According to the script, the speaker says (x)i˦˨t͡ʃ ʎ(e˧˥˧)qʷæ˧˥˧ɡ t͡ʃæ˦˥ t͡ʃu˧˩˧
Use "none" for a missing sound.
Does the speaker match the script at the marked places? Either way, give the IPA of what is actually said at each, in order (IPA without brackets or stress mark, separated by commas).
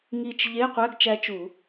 ŋ, e˧˥˧